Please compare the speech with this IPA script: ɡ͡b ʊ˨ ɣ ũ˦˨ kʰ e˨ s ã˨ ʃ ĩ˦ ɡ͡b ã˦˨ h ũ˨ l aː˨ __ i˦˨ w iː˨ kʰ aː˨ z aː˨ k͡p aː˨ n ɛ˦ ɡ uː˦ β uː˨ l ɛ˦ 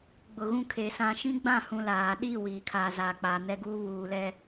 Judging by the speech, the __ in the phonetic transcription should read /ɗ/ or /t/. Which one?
ɗ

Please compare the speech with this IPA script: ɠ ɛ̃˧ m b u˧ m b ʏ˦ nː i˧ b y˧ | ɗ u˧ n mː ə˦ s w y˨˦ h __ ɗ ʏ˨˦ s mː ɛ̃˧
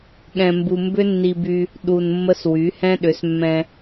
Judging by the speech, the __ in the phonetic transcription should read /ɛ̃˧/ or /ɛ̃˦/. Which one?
ɛ̃˦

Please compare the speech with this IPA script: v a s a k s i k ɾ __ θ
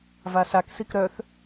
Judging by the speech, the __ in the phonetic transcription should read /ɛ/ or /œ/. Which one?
œ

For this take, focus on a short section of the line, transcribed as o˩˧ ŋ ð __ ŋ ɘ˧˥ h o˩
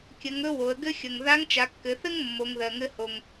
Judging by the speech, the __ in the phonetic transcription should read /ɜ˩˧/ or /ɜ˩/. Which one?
ɜ˩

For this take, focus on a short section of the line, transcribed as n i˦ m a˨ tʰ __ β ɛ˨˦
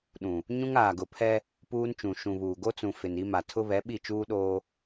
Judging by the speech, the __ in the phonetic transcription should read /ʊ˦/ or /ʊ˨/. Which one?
ʊ˦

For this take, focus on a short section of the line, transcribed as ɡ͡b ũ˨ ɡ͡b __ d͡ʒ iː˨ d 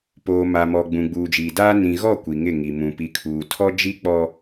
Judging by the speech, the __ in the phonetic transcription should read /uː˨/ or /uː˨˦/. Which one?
uː˨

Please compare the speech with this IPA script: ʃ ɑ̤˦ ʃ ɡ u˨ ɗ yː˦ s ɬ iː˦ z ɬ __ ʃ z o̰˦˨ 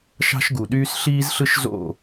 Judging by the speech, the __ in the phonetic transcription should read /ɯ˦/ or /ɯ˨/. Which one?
ɯ˦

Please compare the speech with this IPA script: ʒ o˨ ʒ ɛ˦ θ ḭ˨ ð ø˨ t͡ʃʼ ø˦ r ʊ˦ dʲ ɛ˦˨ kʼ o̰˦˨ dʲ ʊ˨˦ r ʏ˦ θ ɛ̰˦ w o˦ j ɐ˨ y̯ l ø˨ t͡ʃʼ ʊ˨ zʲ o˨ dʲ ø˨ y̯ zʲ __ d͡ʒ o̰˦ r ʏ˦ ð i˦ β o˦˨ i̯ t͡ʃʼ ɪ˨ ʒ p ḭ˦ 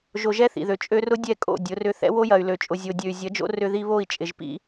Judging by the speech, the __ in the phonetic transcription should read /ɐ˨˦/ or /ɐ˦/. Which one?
ɐ˨˦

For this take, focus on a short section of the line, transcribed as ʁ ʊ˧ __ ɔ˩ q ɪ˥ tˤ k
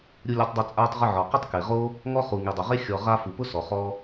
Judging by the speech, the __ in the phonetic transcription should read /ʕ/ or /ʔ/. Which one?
ʕ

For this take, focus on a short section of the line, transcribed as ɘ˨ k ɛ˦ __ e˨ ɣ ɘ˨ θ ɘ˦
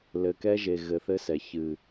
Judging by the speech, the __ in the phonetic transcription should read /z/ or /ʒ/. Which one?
ʒ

